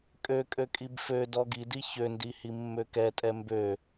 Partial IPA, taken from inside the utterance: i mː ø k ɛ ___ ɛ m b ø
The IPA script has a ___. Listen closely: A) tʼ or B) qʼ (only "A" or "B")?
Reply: A